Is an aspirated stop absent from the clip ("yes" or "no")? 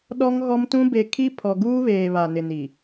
no